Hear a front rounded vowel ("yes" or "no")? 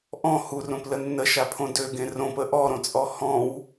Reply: yes